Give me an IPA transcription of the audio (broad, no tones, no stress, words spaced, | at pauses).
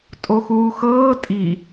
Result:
tʼoxuːxɤː tʼi